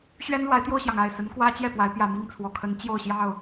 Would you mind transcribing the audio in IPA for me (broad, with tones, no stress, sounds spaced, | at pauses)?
ɕ ɥ ɛ˦ n l w a˨˦ ɪ̯ t̪ j o˧ ʊ̯ ɕ j ɑ˩ ŋ a˥˨ ɪ̯ s ə˨˦ n k w ä˦ t͡ɕ j ɛ˥˨ p w a˨˦ ɪ̯ p j ä˨˩ m i˥˨ ŋ t͡sʰ w ɔ˨˩ kʰ ə˨˦ n t͡ɕ j o˥˨ ʊ̯ ɕ j ɑ˥˨ ʊ̯